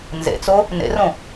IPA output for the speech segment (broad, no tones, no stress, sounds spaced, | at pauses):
n z ḛ t͡s o | n ḛ r õ